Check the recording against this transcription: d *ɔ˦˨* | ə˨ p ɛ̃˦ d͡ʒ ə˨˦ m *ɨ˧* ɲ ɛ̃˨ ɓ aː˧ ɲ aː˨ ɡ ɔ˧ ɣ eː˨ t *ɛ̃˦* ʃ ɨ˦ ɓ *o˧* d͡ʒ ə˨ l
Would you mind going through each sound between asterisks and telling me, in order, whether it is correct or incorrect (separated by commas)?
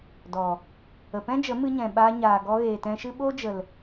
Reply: incorrect, correct, incorrect, incorrect